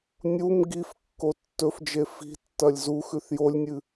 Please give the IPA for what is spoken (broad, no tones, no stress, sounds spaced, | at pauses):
nʲ u m ɡ i f kː o tː ɵ f d͡ʒ e f i̤ tː ɐ lʲ z u x ʉ θ j o lʲ nʲ ɨ